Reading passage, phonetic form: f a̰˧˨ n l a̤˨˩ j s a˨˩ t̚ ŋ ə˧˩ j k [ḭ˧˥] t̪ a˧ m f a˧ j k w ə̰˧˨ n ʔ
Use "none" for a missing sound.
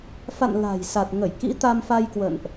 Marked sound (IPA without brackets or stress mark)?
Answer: ḭ˧˥